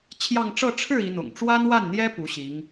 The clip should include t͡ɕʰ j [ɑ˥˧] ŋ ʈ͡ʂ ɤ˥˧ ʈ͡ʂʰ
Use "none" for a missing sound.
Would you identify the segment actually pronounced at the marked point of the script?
ɑ˥˧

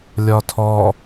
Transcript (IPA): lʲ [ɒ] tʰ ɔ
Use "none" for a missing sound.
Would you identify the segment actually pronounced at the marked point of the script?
ɒ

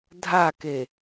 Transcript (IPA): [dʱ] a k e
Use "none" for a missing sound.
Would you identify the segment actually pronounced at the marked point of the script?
dʱ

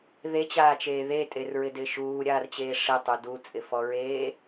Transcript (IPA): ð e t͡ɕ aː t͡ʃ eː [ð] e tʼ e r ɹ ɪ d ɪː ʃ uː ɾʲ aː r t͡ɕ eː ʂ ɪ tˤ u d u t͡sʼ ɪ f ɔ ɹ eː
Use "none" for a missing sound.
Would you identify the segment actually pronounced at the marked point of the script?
ð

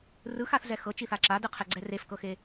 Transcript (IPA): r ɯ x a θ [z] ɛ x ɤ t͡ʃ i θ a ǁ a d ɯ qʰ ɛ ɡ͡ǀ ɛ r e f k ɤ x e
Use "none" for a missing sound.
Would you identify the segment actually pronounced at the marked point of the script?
z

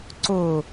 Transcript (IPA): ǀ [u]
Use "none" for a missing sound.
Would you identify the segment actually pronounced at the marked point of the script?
ʊ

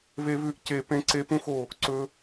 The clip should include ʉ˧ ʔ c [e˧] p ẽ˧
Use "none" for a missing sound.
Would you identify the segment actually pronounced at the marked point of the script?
e˨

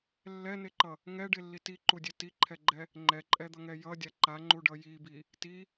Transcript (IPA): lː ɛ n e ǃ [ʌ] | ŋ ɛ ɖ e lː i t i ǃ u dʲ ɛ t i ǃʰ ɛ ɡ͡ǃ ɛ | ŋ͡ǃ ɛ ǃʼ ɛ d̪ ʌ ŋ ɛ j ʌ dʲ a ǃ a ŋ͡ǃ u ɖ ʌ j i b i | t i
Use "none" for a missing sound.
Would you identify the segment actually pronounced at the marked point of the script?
ʌ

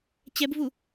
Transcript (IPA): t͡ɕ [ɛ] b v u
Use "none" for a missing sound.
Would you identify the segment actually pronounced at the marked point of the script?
ɛ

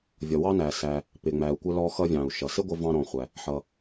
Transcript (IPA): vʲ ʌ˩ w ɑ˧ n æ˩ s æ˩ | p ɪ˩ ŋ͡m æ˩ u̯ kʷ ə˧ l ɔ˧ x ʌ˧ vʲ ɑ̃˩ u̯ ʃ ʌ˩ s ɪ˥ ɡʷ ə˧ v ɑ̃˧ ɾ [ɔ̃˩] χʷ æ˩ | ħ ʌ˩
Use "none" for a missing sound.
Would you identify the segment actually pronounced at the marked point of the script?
ɔ̃˩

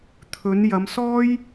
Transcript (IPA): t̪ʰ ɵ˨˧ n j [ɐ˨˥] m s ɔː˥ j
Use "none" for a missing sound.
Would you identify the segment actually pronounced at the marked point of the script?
ɐ˨˧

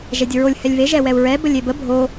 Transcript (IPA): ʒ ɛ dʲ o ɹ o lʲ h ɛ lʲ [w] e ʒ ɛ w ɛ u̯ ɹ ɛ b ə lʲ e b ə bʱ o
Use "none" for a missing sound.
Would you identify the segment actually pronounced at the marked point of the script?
β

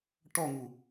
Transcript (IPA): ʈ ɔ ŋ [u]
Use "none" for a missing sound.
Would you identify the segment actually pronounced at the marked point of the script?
u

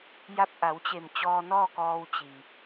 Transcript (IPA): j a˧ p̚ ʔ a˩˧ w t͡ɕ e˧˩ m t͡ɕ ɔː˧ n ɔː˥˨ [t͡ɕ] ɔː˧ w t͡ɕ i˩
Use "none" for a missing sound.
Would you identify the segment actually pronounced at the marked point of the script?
k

